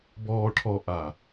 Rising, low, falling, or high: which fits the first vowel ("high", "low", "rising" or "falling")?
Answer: low